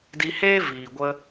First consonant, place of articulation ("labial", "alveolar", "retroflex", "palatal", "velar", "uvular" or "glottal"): alveolar